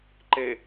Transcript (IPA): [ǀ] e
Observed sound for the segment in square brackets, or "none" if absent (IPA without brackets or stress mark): ǃ